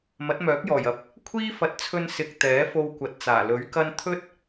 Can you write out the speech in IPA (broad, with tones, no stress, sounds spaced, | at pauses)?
m ɐ˨˥ t̚ m œː˨˥ k̚ j ɔː˨˩ j ɐ˨˥ p̚ | kʷʰ iː˥ f ɐ˨˥ t̚ t͡sʰ ɵ˧ n s ɪ˨ k̚ t̪ ɛː˨˥ f o˧ w kʷ ɐ˨ t̚ t͡s aː˨˩ l ɵ˨˥ ɥ k ɐ˥ n t̪ʰ ɵ˥ t̚